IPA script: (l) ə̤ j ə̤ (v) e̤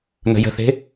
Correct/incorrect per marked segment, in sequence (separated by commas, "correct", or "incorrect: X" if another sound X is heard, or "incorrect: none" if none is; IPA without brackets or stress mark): incorrect: n̪, incorrect: θ